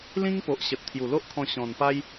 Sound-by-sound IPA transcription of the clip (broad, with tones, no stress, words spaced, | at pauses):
lĩ˦ŋpo˨ʔɕə˨t̚ t̪ʰju˨˩lo˦ʔkʰɔ̃˧ ɕɔ̃˨˩npa˦j